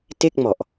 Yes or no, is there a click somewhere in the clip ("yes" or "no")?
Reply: no